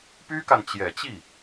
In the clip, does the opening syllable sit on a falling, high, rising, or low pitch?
high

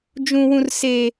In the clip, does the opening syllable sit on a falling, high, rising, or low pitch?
high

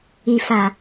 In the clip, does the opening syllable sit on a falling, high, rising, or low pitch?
low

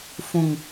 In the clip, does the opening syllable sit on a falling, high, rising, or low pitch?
low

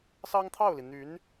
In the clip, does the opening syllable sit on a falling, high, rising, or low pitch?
high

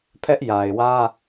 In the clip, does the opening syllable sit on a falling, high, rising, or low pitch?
high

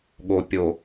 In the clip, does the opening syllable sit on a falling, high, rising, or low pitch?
low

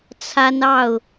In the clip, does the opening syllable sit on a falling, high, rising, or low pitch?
high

